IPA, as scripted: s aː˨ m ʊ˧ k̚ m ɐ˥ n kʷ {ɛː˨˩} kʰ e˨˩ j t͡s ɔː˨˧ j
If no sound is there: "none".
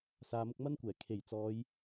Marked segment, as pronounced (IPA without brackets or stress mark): ɛː˨˩